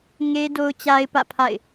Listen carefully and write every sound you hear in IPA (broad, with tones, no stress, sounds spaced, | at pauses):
ŋ e˦ d o˦ ʊ̯ t͡ɕ a˦ ɪ̯ p ä̰˦˨ pʰ a̰˦˨ ɪ̯